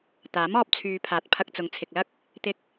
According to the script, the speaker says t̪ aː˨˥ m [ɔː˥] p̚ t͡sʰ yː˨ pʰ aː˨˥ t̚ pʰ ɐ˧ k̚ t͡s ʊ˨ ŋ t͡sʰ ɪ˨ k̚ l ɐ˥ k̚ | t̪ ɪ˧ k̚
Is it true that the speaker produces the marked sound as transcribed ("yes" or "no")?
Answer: no